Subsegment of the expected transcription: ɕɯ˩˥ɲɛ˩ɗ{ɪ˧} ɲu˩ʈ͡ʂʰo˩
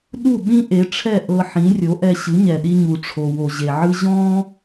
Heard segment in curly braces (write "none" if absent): i˧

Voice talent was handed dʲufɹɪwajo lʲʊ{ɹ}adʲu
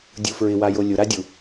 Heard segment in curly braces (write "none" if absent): ɾ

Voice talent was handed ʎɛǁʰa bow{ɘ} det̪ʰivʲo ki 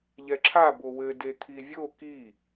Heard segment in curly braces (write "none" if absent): ɘ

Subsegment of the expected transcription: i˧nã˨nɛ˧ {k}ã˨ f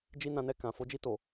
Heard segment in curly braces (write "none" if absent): k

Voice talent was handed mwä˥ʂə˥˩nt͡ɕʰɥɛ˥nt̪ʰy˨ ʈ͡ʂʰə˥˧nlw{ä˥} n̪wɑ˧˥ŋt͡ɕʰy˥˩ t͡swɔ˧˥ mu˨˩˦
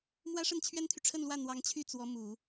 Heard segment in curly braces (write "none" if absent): ä˥˩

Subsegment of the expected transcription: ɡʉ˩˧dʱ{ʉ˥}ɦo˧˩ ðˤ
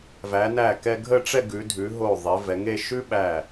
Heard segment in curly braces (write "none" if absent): ʉ˩˧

